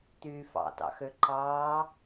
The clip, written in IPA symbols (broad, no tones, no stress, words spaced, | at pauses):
t̪yːfɑ̰tɑ̰xø ǃɑː